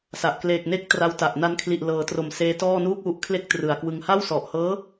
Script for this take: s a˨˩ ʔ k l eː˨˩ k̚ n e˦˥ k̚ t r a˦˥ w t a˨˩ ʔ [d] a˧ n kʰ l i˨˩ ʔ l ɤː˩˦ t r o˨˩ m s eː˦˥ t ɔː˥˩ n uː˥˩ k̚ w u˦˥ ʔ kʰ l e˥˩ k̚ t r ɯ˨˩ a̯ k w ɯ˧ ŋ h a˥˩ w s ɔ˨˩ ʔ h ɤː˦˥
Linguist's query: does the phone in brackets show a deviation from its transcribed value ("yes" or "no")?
yes